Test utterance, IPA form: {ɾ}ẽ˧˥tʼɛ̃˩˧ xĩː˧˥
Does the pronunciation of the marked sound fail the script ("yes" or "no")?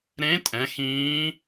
no